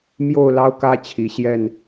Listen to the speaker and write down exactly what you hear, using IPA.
m j o˥˨ ʊ̯ l ɑ˦ ʊ̯ k ä˦ t͡ɕʰ i˨˦ ɕ j ɛ˥˨ n

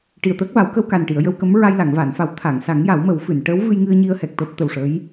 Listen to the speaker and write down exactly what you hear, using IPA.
ʈ i˨˩ ə̯ t̪ əː˦˥ k̚ v a˨˩˦ w k ə˧ w k a˨˩ n ʈ i˨˩˨ ə̯ j ə˧ w k ə˧˥ m ɹ a˧ j l a˨˩˨ ŋ v a˨˩˨ n f a˨˩˦ w t̪ʰ a˨˩˨ ŋ s a˨˩˦ ŋ j a˨˩˦ w m ə˨˩˦ w f ɨ˨˩˨ n ʈ əː˧˥ w v ɨ˧ j ŋ ɨ˧ ə̯ ɲ i˧ ə̯ h ɛ˨˩ k̚ t̪ əː˦˥ p̚ t̪ ə˨˩ w ʂ ə˧˥ j

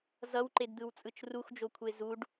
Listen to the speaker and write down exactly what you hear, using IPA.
z ʌ w ǃ e d d̪ ɯ w t͡sʼ ɯ t͡ʃ r u x d͡ʒ o kʷʰ e z u ɖ

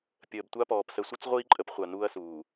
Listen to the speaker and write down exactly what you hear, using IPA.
pʲ əː˨ b tʷ a˦ p ɔː˨ p s ə˨ sʷ ɨ˦ t͡s ʁʷ iː˦ ǃʼ ə˦ p χʷ a˨ n uː˦ ɐ̯ s uː˨

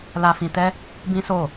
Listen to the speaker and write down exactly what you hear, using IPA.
l a˧ f ĩ˧ t ɛ˦ | b ĩ˦ s o˦˨

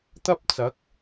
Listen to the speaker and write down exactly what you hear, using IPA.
t̪ ɐ˥ p̚ t͡s ɐ˨˥ k̚

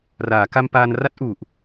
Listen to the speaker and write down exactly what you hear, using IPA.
r aː˩˦ k a˧ m p aː˧ n r a˦˥ t̚ ʔ u˨˩ ʔ

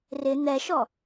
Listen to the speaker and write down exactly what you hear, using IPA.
r ɪ n̪ ɛ ʃ ɔ

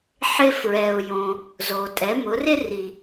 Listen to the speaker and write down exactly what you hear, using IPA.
ħ ɪ˧ f ɹ ɛ˩ ʊ̯ j õ˩ | z o˩ tʼ ɛ˩˧ m ʊ˩˧ r ɪ˥ r i˩

